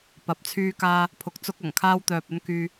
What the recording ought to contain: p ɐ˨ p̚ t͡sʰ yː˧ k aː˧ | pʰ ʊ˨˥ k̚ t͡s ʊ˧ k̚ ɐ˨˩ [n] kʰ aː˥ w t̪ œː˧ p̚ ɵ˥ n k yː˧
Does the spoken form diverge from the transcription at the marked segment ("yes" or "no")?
yes